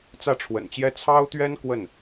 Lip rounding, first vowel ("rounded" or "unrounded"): unrounded